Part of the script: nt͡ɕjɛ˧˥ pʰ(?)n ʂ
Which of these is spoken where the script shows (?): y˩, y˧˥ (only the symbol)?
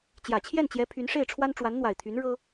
y˧˥